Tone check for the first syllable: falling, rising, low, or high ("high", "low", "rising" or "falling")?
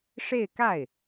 falling